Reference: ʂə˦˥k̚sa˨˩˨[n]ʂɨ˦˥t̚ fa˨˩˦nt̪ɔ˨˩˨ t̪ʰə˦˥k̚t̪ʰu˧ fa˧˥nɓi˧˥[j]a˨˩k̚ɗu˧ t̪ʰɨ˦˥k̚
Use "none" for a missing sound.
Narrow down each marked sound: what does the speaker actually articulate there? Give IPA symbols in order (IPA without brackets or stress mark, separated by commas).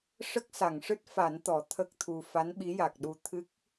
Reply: ŋ, j